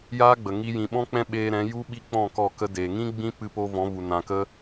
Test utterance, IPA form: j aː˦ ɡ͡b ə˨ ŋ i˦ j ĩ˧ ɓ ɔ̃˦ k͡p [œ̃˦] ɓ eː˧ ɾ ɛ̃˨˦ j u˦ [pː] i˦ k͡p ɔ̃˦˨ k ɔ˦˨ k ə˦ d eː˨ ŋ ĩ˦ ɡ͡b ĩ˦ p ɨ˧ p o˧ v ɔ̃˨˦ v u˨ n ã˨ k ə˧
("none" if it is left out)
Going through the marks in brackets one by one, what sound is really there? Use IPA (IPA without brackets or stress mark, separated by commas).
ɛ̃˦, ɓ